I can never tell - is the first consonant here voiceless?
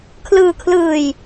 yes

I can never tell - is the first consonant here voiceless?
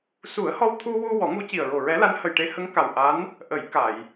yes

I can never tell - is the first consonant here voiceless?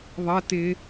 no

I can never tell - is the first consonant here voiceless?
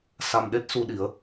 yes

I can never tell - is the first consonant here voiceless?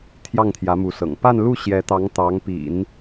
yes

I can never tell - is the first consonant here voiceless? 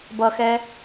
no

